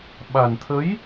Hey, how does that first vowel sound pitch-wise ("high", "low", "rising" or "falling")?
low